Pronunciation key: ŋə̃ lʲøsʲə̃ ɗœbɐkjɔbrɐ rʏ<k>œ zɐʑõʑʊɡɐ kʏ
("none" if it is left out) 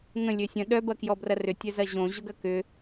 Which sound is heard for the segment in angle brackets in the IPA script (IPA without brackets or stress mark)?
tʲ